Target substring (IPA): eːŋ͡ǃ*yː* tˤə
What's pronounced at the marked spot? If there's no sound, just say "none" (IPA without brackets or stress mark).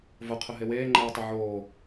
eː